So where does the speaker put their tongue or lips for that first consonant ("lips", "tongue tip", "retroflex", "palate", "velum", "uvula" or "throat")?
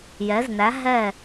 palate